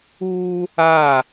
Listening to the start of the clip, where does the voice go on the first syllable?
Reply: high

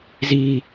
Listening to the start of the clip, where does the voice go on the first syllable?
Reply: high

